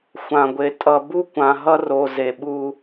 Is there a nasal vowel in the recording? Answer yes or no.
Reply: yes